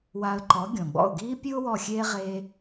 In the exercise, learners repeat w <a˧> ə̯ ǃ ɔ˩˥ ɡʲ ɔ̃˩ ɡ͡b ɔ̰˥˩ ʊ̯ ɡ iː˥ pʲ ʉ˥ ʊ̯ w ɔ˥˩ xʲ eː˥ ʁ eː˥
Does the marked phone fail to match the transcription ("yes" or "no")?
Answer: no